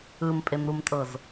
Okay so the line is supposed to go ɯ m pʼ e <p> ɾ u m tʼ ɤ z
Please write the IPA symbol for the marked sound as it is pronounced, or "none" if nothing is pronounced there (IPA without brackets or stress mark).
m